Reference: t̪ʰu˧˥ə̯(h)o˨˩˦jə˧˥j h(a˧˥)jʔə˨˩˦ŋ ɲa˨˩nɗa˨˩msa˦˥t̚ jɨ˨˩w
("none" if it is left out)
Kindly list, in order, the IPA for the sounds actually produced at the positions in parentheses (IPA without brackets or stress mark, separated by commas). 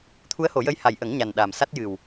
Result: h, a˨˩